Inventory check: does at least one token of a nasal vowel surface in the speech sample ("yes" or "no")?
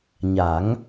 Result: no